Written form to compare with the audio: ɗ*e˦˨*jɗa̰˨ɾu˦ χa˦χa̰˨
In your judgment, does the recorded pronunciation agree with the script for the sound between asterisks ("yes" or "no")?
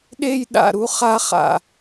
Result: yes